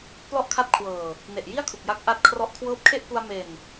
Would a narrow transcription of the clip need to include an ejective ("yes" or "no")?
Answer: no